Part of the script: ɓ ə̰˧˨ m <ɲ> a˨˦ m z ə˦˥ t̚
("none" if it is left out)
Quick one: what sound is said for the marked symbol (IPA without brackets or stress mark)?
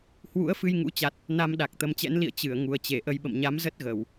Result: ɲ